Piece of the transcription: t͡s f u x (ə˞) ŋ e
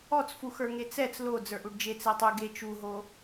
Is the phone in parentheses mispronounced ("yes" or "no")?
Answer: no